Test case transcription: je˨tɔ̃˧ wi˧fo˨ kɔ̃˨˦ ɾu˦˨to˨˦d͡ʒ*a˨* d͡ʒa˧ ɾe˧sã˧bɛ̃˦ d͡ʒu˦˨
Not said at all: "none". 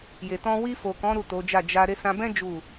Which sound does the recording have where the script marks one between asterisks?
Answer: a˦˨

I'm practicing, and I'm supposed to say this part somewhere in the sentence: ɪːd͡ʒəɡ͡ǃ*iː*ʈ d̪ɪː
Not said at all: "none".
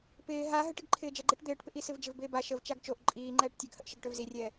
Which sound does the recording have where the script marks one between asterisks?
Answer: i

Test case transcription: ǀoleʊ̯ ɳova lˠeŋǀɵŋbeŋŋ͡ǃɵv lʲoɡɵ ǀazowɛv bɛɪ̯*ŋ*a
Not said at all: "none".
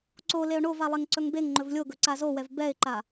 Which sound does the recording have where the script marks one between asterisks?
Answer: ǃ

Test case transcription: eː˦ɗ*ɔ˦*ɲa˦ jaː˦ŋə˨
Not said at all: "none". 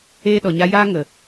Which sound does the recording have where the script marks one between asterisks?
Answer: ɔ˨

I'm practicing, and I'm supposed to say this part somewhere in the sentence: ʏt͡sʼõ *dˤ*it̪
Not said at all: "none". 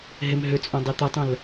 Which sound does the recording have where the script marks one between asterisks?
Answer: dˤ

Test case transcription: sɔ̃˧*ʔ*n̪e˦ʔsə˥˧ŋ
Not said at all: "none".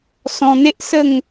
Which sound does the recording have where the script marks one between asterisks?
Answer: none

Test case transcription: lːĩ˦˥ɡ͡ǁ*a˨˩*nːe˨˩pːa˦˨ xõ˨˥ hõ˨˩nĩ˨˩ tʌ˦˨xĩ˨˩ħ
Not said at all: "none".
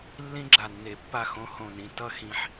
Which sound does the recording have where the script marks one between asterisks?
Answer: a˨˩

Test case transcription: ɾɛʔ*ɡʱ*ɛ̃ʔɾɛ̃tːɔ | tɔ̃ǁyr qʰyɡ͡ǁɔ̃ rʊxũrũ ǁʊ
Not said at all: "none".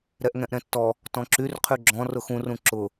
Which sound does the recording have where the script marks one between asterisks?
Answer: ŋ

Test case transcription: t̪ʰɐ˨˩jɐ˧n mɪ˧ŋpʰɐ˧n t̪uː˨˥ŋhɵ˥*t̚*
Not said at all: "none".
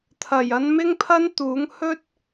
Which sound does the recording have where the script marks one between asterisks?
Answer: t̚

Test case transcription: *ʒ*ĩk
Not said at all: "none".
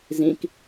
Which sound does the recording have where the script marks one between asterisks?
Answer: z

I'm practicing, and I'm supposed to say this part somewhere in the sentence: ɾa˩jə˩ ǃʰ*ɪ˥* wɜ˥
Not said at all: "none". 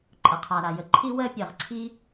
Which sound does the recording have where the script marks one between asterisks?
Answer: i˥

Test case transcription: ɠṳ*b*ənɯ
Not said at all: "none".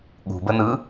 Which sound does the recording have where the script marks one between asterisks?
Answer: b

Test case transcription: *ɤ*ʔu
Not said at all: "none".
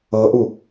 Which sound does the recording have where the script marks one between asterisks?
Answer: ɤ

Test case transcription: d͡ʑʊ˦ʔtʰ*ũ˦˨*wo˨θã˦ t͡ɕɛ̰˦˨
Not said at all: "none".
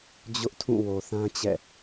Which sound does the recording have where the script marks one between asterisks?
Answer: ũ˦˨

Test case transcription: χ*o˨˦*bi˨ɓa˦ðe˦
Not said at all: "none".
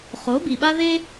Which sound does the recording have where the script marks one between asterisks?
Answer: o˨˦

